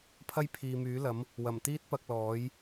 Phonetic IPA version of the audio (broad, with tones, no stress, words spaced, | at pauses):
pʰɐ˥jpʰiː˨myː˨˥lɐ˨˥m | wɐ˨˩mt̪iː˥t̚pɐ˧k̚ lɔː˨˥j